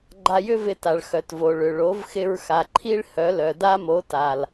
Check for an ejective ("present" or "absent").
absent